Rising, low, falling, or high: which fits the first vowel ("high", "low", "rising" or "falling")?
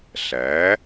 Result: rising